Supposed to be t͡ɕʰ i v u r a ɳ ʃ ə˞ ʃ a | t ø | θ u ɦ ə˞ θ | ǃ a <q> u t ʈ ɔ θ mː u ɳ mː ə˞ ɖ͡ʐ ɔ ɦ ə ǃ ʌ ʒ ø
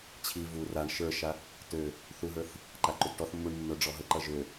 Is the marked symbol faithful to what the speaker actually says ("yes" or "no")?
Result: no